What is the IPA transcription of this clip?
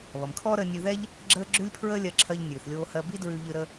βʌ˩mkʰɔː˥ɾəː˧ nʲʉ˧ðɛ˥ʎ | ɡ͡ǁəː˥ ɡ͡ǁʉ˥lʲpʰɹəː˥lʲɜ˧ǁʰɜ˧ʎ nʲʉː˩θlʲoː˧hɜ˧ bi˥dɹʉ˧ʎɨ˧ ɾə˧

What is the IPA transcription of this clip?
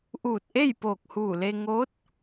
ʔuː˧˩t̚ʔe˥˨jpoː˧˩k̚huː˧˩ le˧ŋo˧˥t̚

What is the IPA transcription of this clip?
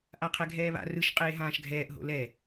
ʔaqʰɛɡʱɛːβa̰ rɯʃ qʼeːɦãːʃɡʱɛːʔ ɦo̰lɛ

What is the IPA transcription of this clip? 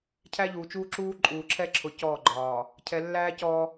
cʰæ˦ʎuː˨t͡ʃuː˦ ǁuː˦ ǃʼuː˨ǁʰɛ˦ǁʰʊ˨ cɔː˦˨ɡ͡ǃɒː˨ | cʰɛ˨lːæː˦ cɔ˦

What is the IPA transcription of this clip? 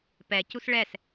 pɛ cusɭɛs

